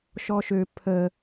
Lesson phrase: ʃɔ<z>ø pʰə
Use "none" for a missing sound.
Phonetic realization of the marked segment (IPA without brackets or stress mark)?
ʃ